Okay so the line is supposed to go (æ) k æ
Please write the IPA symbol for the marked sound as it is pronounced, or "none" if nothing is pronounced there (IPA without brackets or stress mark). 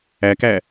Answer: æ